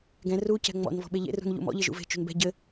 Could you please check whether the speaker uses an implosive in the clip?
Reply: yes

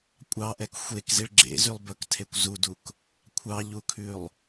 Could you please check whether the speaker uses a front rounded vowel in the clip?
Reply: yes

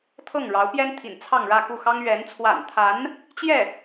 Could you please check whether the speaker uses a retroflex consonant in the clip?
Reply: yes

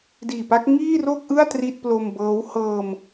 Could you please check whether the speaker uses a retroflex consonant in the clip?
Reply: no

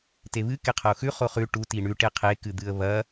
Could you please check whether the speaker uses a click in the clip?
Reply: no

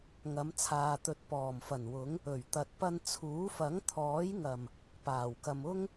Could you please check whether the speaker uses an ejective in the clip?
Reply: no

